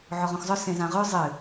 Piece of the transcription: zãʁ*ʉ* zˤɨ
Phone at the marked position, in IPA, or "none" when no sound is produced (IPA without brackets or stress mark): ʉ